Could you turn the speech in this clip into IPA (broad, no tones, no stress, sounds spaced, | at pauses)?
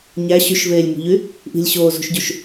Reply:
ɲ æ ɕ y ʃ v eː lʲ m ṳ ʎ y | ʔ i̤ lʲ ɕ oː z ṳ ʃ ɟ u ʃ